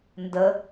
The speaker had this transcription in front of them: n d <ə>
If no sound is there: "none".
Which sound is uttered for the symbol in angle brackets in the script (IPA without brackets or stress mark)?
ə